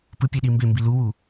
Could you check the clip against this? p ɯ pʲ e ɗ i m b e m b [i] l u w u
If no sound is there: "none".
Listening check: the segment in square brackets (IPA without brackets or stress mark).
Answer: i